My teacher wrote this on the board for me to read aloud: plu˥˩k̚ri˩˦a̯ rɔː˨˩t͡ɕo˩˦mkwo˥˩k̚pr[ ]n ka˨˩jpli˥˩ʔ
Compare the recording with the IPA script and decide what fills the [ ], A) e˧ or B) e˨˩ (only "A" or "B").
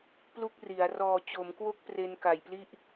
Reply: A